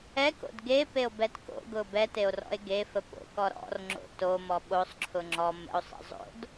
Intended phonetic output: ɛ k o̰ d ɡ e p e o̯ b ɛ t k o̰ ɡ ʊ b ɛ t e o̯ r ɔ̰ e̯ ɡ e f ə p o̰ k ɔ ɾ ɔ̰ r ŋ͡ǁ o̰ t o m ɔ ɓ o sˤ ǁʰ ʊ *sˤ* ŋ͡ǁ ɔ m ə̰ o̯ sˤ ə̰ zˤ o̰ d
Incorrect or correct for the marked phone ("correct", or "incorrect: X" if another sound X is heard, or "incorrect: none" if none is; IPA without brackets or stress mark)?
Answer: incorrect: none